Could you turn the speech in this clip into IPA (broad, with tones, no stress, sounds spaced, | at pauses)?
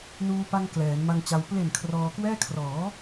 n uː˧ p a˧ ŋ k l ɛː˩˦ n m a˧ ŋ t͡ɕ a˧ w p l e˨˩ n kʰ r ɔː˧ k w ɛː˥˩ kʰ r ɔː˩˦